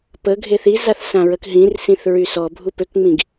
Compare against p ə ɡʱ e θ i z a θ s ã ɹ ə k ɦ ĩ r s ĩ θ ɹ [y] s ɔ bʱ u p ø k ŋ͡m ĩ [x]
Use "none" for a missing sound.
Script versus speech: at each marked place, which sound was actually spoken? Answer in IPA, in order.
y, ɡ

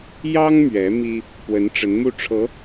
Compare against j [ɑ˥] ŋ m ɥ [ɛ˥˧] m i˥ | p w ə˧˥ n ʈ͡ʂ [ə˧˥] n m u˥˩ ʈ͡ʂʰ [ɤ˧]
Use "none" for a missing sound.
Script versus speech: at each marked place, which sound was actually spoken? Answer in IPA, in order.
ɑ˥, ɛ˧˥, ə˧˥, ɤ˧˥

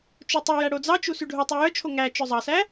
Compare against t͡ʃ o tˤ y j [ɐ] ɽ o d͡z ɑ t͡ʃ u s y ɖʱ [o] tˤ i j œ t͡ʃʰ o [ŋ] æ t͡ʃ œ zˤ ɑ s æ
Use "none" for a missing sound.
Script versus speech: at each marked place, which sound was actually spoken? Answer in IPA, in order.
æ, o, ŋ

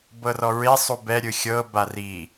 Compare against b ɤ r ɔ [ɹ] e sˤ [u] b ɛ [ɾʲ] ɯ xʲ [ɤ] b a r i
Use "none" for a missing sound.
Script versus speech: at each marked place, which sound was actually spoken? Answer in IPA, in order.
ɹ, u, ɾʲ, ɤ

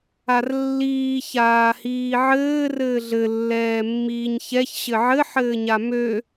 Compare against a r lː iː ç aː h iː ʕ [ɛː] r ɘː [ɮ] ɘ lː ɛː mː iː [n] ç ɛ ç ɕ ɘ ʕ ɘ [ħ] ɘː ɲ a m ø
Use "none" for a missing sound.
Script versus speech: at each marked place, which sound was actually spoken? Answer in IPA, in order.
ɘː, ɮ, ɲ, ħ

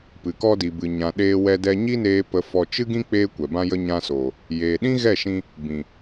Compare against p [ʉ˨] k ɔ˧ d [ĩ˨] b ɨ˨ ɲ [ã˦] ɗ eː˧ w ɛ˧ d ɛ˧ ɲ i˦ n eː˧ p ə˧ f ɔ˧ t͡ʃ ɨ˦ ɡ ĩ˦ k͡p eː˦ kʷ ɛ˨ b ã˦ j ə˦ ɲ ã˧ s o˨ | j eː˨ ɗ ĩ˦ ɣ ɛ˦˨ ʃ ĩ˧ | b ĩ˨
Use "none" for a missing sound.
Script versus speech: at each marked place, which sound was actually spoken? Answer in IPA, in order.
ɨ˨, i˨, ã˨

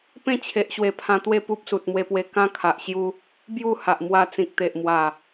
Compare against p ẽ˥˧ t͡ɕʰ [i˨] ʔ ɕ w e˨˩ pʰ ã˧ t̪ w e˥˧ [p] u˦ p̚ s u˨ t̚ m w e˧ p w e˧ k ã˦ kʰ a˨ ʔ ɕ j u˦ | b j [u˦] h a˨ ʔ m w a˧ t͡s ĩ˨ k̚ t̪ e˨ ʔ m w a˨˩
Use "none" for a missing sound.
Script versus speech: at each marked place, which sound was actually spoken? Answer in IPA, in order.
e˨, p, u˥˧

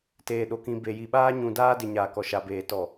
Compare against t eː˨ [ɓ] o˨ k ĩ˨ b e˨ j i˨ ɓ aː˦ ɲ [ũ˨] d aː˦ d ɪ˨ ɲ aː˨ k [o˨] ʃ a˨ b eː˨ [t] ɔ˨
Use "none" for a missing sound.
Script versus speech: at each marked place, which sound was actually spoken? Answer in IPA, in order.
ɗ, ũ˨, ɔ˨, t

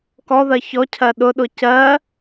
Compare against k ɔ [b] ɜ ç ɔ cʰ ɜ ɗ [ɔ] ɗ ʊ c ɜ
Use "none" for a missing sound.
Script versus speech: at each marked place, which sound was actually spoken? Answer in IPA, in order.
ð, ʊ

